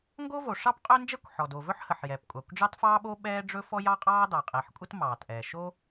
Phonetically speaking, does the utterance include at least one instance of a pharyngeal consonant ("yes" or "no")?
yes